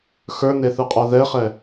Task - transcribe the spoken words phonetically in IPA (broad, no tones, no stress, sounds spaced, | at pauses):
x ə˞ n e θ ɯ qʼ a ð ɛ χ ɛ